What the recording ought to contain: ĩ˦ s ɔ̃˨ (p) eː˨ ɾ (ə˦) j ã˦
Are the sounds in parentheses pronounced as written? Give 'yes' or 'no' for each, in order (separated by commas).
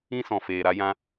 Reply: no, no